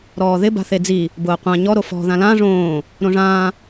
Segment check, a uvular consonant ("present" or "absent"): present